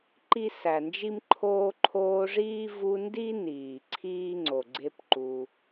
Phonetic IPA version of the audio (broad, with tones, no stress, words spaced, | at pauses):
ǃi˥sæ˨nd͡ʒi˥mǃʰoː˥ ǃʰoː˦ʐiː˥ vu˦ndi˥niː˩ ǀʰiː˥ŋ͡ǀo˩ ɡ͡ǀe˦pǃu˩